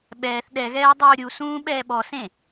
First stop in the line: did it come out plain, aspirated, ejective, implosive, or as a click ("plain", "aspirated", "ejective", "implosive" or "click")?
implosive